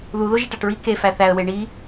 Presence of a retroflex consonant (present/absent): present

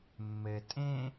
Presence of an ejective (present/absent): present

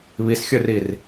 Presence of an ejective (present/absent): absent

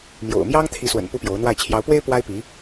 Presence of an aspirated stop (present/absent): present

